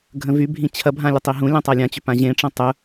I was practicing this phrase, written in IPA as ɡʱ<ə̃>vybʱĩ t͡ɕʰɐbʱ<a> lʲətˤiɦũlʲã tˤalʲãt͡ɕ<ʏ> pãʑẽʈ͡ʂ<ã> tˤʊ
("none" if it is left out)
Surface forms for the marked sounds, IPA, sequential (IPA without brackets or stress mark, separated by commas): ə̃, ã, ʏ, ɐ̃